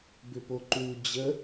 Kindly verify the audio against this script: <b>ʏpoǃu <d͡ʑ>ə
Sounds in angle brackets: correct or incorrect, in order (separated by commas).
correct, correct